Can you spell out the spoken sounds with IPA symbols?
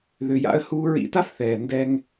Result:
ðʏ˨ja̰˧ə̯ huː˧ɹḭ˧ta˦fθɛː˨ ndɛ˧ŋ

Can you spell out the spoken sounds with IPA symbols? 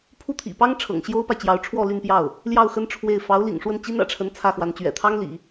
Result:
pʰu˥˩t̪ʰḭ˨˩pɑ˥ŋ ʈ͡ʂʰɤ̰˨˩ŋɕjo˥ʊ̯pa˨ɪ̯t͡ɕjɑ˧˥ʊ̯ ʈ͡ʂʰwɔ˥˧ly˥˧npjɑ˥˩ʊ̯ | ljɑ˥˩ʊ̯xə˥n ʈ͡ʂʰwe˥˩ɪ̯ fɑ˧˥ʊ̯lḭ˨˩ŋʂwə˥˩n t͡ɕi˥nä̰˨˩ʈ͡ʂʰə˧˥n t͡sʰä˥˩xwa˧˥nt͡ɕɥɛ̰˨˩ t̪ʰɑ˥ŋlḭ˨˩˦

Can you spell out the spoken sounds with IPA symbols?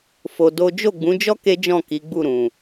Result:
fo˧do˦ d͡ʒo˦˨ɡ͡bũ˨˦d͡ʒɔ˦ ke˦d͡ʒɔ̃˦˨ ki˨˦ɡ͡bu˦˨ɾũ˨

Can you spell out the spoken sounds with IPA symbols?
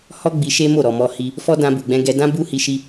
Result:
hɔ˦ɡ͡bi˧ ʃe˦mo˦˨ ɾɔ˨mɔ˧hi˧ | fɔ˦ dã˧ bu˨ɡ͡bɛ̃˧ɡɛ˧ dã˦bu˦hi˧ ʃi˧

